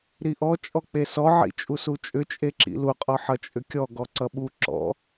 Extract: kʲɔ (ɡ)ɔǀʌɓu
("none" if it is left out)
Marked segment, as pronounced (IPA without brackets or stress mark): ɡ